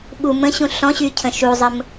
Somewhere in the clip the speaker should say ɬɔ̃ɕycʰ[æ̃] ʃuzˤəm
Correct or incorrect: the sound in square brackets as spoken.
incorrect: ə̃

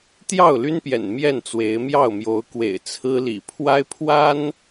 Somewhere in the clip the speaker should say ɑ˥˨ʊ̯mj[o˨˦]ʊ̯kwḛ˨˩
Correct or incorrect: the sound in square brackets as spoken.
correct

